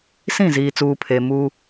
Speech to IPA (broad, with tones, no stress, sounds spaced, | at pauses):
s ĩ˦˨ z iː˨ t͡s uː˨ pʰ e˨ m uː˦